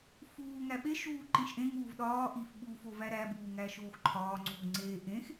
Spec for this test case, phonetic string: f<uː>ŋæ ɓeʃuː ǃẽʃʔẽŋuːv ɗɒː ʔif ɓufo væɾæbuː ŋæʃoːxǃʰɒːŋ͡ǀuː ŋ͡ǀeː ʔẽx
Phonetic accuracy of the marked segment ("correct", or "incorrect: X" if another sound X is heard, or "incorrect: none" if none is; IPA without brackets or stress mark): correct